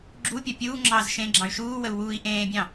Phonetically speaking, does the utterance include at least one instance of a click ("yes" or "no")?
yes